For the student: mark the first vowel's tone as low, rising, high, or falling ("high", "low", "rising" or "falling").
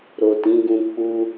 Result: low